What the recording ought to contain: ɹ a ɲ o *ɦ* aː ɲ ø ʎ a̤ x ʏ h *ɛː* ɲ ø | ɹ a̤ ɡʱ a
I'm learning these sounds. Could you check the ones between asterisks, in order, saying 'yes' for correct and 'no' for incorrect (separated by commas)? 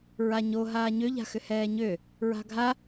yes, yes